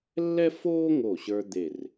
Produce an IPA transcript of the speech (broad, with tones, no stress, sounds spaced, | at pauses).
lː ɛ˥ f oː˥ ŋ o˧˩ ɕ ə˞˧ d̪ e˧˩ r